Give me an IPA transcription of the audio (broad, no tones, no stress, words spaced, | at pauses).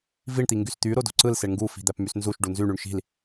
viɳ t̪iŋɡyst̪y ɾodo̤ǀɯl seɳŋɡu fi̤d̪æpmysnzuʃ ɖunzy ɳyɳʃi̤l